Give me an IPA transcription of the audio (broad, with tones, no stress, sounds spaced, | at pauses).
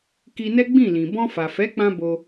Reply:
k i˧ n ɛ˦ ɡ͡b ĩ˦˨ l ĩ˨ b ɔ̃˧ f a˨ f ɛ˨˦ k͡p ã˧ b o˧